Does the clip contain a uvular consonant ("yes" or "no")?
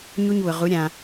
yes